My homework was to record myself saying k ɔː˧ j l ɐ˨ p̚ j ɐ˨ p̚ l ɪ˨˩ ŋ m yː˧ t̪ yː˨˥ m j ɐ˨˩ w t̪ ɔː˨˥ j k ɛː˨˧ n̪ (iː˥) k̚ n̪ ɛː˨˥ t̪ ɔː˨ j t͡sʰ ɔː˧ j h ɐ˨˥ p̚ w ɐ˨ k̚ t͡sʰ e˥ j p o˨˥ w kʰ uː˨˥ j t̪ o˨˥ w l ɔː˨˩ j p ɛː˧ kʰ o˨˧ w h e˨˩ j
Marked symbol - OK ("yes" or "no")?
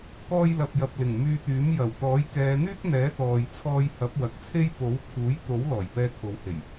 no